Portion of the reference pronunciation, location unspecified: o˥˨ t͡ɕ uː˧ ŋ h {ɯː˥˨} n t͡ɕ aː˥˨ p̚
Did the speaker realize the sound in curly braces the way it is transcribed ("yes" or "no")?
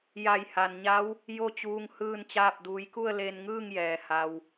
yes